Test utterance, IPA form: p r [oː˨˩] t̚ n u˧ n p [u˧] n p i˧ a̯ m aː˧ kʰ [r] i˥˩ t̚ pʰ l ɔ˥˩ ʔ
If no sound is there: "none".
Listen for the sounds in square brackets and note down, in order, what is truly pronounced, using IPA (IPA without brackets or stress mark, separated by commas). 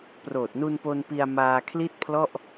oː˨˩, o˧, l